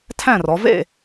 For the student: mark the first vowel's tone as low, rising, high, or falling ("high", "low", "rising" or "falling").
falling